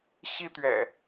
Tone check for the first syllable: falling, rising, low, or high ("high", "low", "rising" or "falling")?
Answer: high